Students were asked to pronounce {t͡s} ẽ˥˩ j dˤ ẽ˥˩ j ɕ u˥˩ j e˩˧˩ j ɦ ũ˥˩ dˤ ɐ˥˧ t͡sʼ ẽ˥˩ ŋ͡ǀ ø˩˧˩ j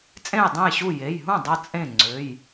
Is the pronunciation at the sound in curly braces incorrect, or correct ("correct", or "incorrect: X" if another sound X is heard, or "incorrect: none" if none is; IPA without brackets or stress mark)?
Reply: incorrect: t͡sʼ